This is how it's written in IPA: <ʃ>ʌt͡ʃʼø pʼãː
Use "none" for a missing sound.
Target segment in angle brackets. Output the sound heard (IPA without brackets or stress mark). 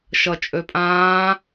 ʃ